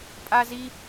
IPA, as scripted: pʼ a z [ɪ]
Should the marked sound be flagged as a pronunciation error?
yes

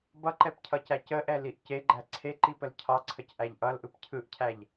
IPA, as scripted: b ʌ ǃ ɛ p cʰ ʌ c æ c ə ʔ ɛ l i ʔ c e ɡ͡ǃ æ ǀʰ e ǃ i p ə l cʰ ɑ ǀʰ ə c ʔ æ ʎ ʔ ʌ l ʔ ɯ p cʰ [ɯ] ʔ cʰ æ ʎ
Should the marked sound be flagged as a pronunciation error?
no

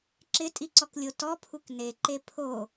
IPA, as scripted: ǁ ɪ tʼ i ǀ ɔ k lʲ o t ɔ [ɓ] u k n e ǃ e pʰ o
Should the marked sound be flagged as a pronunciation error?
yes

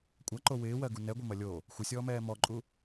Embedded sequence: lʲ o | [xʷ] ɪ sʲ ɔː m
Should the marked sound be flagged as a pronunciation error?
no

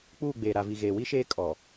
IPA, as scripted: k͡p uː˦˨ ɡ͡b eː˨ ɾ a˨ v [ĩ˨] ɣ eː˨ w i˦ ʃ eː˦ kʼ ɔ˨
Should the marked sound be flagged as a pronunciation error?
yes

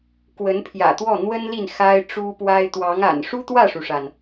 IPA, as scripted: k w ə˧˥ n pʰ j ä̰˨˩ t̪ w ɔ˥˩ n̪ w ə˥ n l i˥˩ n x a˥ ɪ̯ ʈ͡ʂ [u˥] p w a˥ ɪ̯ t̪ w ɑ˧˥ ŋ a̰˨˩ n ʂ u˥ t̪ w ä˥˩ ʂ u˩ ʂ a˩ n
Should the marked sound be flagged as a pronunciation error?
no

